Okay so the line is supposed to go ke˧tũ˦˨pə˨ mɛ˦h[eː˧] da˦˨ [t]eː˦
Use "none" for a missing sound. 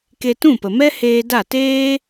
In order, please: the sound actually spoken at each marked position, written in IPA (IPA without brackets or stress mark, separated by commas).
eː˧, t